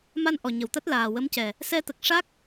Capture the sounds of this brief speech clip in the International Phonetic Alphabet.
m a˧ n ʔ ɔ˨˩ ɲ ə˨˩ w t̪ a˦˥ t̚ l aː˨˩ w ə˧˥ m c ɛ˨˩ | s ɛ˧ t̪ ə˨˩ k̚ ʂ a˦˥ k̚

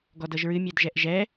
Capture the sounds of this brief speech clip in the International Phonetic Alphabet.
ɡ ɔ d ɤ ʒ ɹ ɨ mʲ ɛ d ʒ ɛ ʔ ʒ ɛ

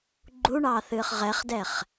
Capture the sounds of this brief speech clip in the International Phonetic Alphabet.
ɡ͡ǃ u ɳ ɑː θ ɨː χ ʁ ɛ χ d ɛ χ

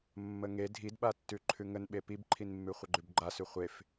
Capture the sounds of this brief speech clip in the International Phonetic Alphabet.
mː ə ŋ e dʱ i d ɓ a tː ʉ ǃʰ ʉ ŋ ə n ɓ e p i b ǃʰ i n mː ʉ χʷ ə ɡ͡ǃ ʉ b ɡ͡ǃ a s ʉ χʷ e f

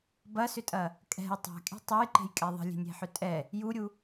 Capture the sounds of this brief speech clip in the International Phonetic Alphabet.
b ɐ s ʏ tʼ ɐ | kʼ ɛ̤ j tˤ ɛ̤ kʼ e̤ tˤ ɛ j ǃ e̤ j kʼ ɛ ðˤ ə̤ lʲ e̤ nʲ e̤ ħ ʏ tʼ ɛ | j u ɾʲ u

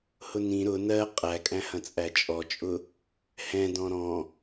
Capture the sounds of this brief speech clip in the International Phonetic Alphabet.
h ʊ n ĩ ɾ ʊ n ɜ qʼ æ kʼ æ̃ h ɐ̃ t͡sʼ æ t͡ʃʼ ɔ t͡ʃʼ ʊ | h ɛ̃ d ɔ̃ ɾ ɔ̃

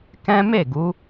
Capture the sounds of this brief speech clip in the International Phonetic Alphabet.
k ɛ̃˦ m e˦˨ ɡ u˨˦

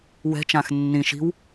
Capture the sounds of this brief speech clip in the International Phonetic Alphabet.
w ɛ̤ t͡ʃ ã x nː ĩ ʃ i̤ w

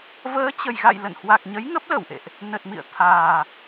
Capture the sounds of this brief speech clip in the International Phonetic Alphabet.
v əː˨˦ t͡ɕ ə˨˩ j ɣ a̰˧˨ j l ə̰˧˨ n h w a˨˩ k̚ ɲ ə˨˦ j ŋ ə˦˥ p̚ l ə˧˩ w ʔ ḛ˧˨ ʔ | n ə˨˩ t̚ m ḭ˧˨ ə̯ t̪ʰ aː˨˩

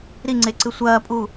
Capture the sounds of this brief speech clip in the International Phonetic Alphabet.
ɾ i ŋ͡ǀ e ǀ ɨ sʷ ɐː pʼ u

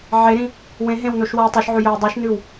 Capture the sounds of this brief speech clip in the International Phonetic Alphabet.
ʕ e ɾ ĩ | w ẽ ɦ ẽ w n o ʃ w a w tˤ u ʃ ʕ ʉ j ɵ w dˤ ʉ ʃ n ʉ w

